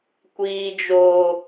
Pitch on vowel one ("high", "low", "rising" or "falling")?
high